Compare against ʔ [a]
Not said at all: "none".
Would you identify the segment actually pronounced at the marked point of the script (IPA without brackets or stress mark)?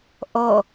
ʌ